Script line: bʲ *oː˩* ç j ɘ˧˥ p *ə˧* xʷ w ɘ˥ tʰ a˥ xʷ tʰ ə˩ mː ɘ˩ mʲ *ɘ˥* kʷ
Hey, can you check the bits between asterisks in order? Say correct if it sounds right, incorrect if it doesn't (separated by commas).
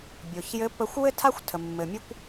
incorrect, correct, correct